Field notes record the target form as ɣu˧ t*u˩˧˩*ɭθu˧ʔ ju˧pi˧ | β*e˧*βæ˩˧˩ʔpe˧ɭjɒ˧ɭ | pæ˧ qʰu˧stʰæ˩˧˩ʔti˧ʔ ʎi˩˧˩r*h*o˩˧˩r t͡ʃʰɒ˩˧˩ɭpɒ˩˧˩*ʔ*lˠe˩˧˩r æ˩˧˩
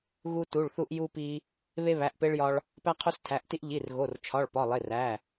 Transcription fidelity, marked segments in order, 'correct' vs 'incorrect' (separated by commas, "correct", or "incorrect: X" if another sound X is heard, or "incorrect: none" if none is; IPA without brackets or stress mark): correct, correct, incorrect: ɣ, incorrect: none